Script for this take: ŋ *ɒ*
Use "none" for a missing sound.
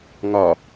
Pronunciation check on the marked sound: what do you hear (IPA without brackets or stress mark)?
ɒ